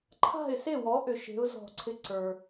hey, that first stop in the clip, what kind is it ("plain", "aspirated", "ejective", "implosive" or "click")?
click